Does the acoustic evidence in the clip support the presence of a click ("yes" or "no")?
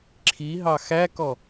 yes